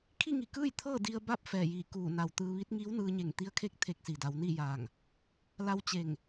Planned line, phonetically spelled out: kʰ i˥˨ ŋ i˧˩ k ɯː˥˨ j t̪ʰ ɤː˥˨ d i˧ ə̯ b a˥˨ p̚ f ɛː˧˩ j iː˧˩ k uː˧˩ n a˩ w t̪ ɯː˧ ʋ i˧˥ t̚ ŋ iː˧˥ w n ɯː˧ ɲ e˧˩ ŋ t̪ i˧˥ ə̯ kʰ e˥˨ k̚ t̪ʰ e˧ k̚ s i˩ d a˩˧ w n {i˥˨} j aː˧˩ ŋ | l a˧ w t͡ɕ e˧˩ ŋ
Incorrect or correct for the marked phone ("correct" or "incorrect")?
correct